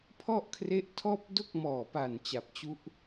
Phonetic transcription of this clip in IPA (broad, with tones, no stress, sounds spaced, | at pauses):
pʰ ɔ˥˩ ʔ kʰ r e˦˥ ʔ tʰ ɔː˥˩ p̚ d o˥˩ k̚ m ɔː˨˩ p a˨˩ n t͡ɕ a˨˩ p̚ t͡ɕ u˦˥ ʔ